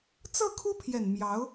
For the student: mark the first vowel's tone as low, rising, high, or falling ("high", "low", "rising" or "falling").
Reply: falling